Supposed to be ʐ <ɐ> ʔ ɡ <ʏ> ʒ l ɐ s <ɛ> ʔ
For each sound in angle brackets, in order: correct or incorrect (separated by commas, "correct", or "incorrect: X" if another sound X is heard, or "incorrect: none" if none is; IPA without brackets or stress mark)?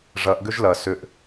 correct, correct, incorrect: ʏ